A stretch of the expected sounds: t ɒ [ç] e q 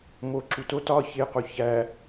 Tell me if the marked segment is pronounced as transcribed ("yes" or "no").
yes